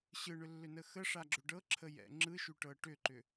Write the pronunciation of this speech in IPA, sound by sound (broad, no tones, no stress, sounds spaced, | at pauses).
ɕ ɯ ɳ ʏ lː ʏ n ə x ə ʂ a ɡ͡ǁ ʏ ɖ ɤ ǁʰ ə j ɛ̰ ŋ͡ǁ ɯ ʃ y ʈ ɤ ʈ ʏ ǃ ʏ